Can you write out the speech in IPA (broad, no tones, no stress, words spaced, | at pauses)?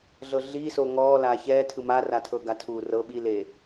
ɮɤɮiːso ŋɔːlaː çɛːtʰɯ ma ratʰɤɡatʰuː rɤ ɓileː